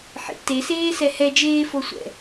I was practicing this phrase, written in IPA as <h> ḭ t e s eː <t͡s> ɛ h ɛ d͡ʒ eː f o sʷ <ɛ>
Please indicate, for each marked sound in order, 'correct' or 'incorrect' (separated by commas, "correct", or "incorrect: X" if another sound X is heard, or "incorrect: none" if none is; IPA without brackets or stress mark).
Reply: incorrect: ħ, incorrect: s, incorrect: ɛ̰